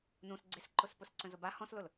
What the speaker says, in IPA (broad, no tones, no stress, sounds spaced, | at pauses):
n ũ s ɡ͡ǀ e s ǃ ʊ s p ʊ s ǀ ə̃ z ʊ b a h ɔ̃ s l ʊ l